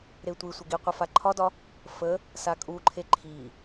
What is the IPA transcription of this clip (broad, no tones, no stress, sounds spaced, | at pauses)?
ɾ e tʷ i sʷ ɪ ɡ i qʷ ɪ f a ǃʰ ɒ d ɒ | f ə | s a kʼ u ǃʰ e ǃʰ i